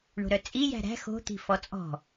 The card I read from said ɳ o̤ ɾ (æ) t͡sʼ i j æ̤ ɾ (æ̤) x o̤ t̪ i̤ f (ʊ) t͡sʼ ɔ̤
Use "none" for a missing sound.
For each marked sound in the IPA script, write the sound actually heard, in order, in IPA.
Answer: œ, æ̤, ɔ

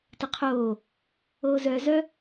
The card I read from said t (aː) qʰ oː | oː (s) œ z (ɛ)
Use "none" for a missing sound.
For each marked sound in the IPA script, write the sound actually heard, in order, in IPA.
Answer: a, z, œ

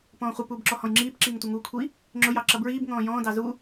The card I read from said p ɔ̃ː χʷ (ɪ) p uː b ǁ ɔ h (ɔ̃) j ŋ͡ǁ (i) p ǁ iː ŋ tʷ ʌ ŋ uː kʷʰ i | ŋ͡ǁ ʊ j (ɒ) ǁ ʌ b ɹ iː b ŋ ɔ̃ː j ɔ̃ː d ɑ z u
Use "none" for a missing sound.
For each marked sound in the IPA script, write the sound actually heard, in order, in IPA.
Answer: ɪ, ɔ̃, iː, ɑ

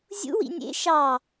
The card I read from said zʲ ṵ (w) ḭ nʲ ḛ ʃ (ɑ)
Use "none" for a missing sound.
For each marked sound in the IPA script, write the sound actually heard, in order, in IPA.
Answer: w, ɑ

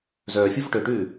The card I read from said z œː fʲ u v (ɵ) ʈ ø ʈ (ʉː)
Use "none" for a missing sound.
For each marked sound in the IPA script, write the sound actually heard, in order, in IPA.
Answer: ɵ, ʉː

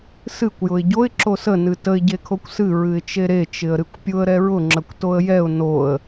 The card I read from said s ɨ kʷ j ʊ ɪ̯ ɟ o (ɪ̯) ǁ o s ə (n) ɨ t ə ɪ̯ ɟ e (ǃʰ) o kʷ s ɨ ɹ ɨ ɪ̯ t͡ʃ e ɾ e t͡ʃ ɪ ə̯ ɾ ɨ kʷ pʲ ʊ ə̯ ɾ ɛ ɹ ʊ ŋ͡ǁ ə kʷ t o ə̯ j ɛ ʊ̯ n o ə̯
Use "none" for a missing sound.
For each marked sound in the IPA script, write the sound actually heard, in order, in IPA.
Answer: ɪ̯, n, kʰ

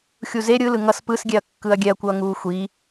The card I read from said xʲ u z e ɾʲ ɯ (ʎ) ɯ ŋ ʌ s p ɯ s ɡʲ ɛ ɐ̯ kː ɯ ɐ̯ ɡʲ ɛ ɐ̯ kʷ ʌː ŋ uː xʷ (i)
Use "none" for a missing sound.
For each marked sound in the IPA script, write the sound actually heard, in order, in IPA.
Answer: l, i

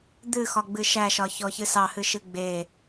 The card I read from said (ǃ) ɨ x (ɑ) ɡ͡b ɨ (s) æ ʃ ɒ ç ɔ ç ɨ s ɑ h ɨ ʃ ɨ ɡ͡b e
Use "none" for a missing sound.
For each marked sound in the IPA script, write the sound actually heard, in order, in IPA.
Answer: d̪, ɒ, ʃ

